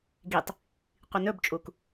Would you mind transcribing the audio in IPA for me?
ɡ i tˤ | qʷ i n ɵ b t͡ʃʼ u k

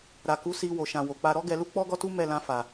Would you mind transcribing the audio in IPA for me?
ɾ a˨ k u˨˦ s i˧ w o˨ ʃ ã˨ w o˨ k͡p a˧ ɾ ɔ˦ ɡ ɛ˧ l u˦ k͡p ɔ˦ ɡ ɔ˦ t u˦ m ɛ˧ l ã˧ f a˨

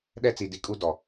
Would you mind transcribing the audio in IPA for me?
ɗ ɛ˦ t͡s i˨ d i˨ kʼ u˦ d ɔ˨

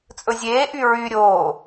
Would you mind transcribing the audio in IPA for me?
t͡sʼ ɵ zʲ eː ʔ y ɹ y ɾʲ oː

